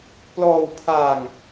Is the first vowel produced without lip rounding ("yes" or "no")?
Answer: no